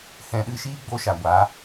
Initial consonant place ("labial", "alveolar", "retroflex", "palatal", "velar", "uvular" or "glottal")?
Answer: glottal